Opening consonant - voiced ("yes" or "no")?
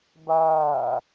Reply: yes